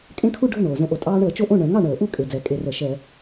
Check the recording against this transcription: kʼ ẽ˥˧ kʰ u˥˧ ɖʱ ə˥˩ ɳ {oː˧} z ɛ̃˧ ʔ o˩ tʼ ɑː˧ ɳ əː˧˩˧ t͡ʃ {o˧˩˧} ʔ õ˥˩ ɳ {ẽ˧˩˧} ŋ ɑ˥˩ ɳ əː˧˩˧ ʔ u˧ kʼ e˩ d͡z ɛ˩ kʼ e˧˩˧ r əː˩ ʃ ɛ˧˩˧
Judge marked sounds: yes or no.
no, no, no

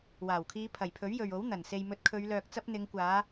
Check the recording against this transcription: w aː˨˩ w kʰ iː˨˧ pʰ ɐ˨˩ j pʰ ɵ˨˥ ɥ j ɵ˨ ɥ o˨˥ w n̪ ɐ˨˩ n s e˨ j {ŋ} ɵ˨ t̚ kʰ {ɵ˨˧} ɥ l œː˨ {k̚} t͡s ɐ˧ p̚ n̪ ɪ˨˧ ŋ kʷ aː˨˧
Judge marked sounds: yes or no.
no, yes, yes

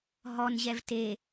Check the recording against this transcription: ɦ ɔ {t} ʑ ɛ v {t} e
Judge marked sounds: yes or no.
no, yes

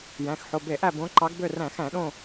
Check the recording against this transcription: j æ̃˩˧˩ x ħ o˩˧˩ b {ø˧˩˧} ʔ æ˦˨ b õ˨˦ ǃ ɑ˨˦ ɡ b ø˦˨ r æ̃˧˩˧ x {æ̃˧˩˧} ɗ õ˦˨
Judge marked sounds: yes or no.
no, yes

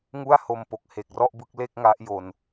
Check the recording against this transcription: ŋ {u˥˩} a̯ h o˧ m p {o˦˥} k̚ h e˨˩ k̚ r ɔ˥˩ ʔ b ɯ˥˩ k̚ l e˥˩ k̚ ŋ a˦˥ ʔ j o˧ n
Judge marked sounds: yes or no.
yes, no

